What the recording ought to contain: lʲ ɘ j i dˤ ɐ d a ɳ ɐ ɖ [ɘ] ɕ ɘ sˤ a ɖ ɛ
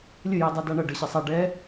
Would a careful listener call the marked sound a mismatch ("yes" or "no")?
no